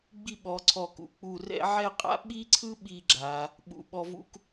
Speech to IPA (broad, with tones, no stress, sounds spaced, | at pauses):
ɡ͡b i˥˧ ɓ ɔ˩˧ ǀʰ ɔ˧˩ k ṵ˩˧ k͡p u˧˩ r ɛ̰˥ ʕ ɛ˥˧ qʼ a̰˥ ɓ i˥ ǀʰ ɯ˥ ɓ i˥˧ ɡ͡ǁ a˩˧ | ɓ ṵ˩˧ ɓ ɔ˧ v ṵ˥ k